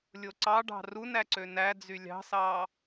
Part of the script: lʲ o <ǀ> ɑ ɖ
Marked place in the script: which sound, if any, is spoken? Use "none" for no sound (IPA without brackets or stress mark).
ǀ